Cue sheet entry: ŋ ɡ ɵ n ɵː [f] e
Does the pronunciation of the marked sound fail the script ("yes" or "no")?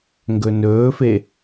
no